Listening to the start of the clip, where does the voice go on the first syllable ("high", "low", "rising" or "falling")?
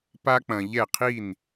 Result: high